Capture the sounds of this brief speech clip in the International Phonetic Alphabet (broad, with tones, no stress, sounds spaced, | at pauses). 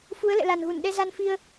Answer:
f u˨˦ ə̯ l ɛ̰˧˨ l a˨˩ n ɣ u˧˩ n ɗ ɛ˧ z a˧ n f i˧ ə̯